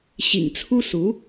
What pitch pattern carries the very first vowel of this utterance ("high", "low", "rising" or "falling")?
low